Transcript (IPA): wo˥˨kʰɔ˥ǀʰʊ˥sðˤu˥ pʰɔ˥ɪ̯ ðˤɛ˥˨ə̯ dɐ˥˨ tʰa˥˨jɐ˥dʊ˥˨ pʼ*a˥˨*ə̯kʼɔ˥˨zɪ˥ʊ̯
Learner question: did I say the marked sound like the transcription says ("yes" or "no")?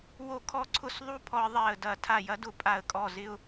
yes